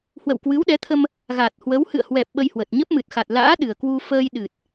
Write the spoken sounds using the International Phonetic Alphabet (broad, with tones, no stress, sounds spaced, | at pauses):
h w ə̰˧˨ w k w ɨ˨˦ w ɗ ɛ˨˦ t̪ʰ ə˧ m | ɣ a˨˩ t̚ h w ə˨˦ w h ɨ̰˧˨ ə̯ h w ɛ˨˩ p̚ ɓ ə˧ j h w ə˨˩ t̚ ɲ ə˦˥ p̚ m ɨ˨˩ t̚ x a˨˩ t̚ l a̰ː˧˥ ɗ ɨ˨˩ ə̯ k w u˧ f əː˧ j ɗ ɨ˨˩ t̚